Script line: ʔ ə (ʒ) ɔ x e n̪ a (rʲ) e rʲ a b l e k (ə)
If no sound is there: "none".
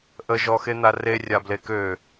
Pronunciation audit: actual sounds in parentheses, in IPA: ʒ, r, ø

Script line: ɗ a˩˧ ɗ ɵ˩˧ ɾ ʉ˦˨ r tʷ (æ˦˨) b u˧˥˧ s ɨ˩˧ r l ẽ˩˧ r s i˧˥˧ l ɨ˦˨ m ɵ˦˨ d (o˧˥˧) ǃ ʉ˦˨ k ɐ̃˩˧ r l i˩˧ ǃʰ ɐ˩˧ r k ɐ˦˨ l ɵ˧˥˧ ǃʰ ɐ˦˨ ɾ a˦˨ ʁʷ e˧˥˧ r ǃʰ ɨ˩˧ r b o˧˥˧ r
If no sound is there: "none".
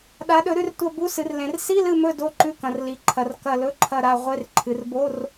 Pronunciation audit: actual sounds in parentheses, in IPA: ɐ˦˨, o˧˥˧

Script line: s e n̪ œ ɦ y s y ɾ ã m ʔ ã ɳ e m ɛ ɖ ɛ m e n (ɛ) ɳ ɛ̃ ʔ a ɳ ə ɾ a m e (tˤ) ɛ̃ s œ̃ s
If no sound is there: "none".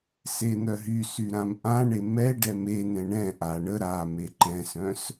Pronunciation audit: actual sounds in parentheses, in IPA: ɛ̃, ǃ

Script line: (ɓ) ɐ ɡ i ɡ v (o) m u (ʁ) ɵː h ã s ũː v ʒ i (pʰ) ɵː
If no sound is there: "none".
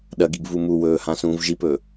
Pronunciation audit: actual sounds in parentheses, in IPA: ɗ, u, w, p

